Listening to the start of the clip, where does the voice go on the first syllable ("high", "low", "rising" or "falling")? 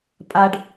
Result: high